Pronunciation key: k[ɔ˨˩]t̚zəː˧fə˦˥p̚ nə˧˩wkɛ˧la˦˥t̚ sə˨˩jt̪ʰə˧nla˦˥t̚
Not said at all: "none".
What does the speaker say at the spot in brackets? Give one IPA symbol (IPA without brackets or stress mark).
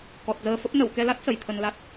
ɔ˨˩